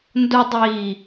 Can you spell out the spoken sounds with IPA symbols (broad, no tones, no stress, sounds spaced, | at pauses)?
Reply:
n d ʊ dˤ iː